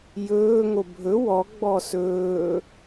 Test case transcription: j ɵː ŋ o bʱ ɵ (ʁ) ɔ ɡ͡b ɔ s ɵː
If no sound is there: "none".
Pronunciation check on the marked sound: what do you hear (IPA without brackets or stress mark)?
w